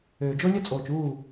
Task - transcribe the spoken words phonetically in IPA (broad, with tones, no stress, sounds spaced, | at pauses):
øː˨ d͡ʒ o˦ lʲ œ˦ t͡sʼ oː˨ t͡ʃ uː˦˨